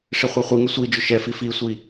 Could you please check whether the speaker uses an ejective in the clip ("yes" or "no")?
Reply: no